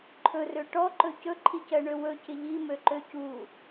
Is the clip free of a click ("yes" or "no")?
no